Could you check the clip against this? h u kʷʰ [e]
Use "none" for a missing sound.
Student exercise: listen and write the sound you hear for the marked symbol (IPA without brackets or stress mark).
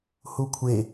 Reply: e